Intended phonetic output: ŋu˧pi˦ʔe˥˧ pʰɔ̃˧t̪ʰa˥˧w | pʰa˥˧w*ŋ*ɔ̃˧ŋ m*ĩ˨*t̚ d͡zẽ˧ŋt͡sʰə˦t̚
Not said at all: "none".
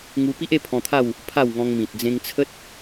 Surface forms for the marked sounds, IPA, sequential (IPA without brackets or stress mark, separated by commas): ŋ, ĩ˨